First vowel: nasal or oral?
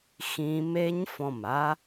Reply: nasal